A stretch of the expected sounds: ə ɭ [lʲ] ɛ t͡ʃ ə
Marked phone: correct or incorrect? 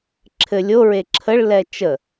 incorrect